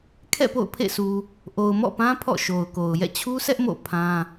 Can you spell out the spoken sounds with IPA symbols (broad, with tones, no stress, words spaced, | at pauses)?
kʰɛ̰˦˨po̰˦˨ʊ̯pʰḛ˦˨sʰu˨ | ʔo˨ʊ̯mɔ̰˦˨pã˦ pʰɔ̰˦˨ʃo˨ʊ̯ko˨ʊ̯ jɛ̰˦˨t͡ɕʰu˦sʰɛ˦ʔ mo̰˦˨ pʰã˦